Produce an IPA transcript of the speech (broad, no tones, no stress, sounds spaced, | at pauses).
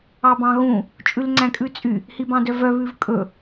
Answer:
ɑ b ɑ̃ ɣ ũ | t͡ʃʼ ʉ l ŋ͡ǀ æ̃ kʼ ʉ t͡sʼ y | h i b ɑ̃ d œ v œ β ʉ v kʼ ɵ